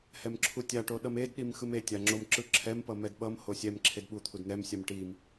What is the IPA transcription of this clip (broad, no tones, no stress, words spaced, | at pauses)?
hɛmǁʰutʲaʈo ɗʌmedɗim xɯmetʲa ŋ͡ǁomǁɯǁʰɛmpʌ mɛdɓʌmho sʲɛm ǁʰedɓut̪ʰud n̪ɛmsʲam ʈim